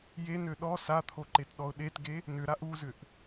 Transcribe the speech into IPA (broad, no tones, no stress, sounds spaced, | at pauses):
j e n ø ɗ ɔ s a t̪ʰ o ǃ e t ɗ ɔ ʊ̯ ɗ e t ɡ e | n ʏ ɾ a ʔ u z ʏ ʔ